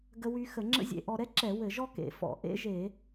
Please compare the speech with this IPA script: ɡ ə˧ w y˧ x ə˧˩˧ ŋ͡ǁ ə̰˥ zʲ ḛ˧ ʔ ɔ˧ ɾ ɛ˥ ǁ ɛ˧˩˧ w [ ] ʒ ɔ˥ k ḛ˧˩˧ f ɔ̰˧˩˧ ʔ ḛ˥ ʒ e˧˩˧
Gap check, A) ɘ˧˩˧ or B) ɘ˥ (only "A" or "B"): A